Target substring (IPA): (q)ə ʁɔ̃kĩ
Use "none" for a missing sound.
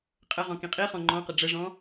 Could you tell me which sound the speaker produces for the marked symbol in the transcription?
qʼ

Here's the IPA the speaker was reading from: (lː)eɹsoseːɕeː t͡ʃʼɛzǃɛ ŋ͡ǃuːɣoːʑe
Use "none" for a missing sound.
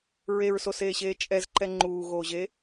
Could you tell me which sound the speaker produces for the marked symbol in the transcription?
ɹ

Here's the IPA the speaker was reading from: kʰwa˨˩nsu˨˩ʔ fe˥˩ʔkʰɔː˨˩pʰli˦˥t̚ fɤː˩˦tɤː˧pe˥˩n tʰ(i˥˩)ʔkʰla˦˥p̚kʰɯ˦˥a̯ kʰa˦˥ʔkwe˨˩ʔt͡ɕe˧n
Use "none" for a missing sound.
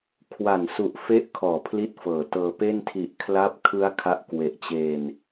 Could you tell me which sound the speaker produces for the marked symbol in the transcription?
i˨˩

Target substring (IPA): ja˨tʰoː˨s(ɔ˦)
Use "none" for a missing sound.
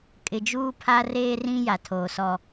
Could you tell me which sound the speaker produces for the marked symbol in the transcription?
ɔ˦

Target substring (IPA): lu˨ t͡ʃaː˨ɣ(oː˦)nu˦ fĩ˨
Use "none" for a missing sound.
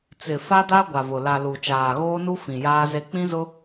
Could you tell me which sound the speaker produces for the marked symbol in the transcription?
oː˦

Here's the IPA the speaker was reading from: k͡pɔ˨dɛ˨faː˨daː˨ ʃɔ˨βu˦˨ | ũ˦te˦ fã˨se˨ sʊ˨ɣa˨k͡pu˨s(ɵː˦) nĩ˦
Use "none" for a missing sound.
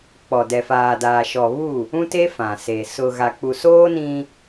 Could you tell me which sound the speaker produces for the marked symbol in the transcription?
oː˦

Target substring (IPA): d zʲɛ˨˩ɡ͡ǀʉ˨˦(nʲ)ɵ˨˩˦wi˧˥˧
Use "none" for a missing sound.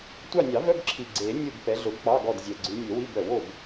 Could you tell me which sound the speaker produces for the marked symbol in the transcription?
nʲ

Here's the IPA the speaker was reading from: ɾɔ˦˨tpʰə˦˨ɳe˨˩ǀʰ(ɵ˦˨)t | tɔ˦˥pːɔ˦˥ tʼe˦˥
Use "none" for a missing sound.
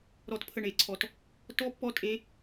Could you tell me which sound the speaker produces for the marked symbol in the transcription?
ɔ˦˨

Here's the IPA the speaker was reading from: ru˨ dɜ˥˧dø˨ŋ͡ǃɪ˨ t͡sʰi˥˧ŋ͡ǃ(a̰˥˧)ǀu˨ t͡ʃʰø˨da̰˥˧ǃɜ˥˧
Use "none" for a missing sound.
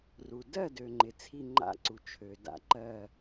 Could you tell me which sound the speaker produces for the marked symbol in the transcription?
a̰˥˧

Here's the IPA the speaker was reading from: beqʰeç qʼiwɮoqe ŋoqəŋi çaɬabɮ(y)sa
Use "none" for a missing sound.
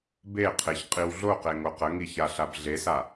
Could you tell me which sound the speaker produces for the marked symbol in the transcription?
e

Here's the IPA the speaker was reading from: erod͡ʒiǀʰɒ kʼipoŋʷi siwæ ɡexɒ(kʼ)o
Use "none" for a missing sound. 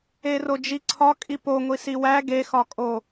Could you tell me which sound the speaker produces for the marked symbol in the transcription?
kʼ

